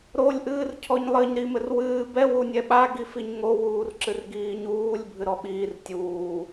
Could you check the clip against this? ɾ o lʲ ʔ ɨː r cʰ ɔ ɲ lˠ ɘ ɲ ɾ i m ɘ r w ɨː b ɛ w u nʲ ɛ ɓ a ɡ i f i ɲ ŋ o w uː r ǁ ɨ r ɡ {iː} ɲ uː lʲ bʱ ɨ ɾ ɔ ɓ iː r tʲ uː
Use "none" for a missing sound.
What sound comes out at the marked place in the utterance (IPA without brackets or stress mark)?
iː